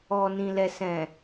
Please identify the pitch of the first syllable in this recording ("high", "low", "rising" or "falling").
low